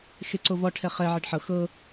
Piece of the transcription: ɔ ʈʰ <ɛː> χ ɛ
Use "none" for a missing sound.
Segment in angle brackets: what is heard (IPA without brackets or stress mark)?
ɛ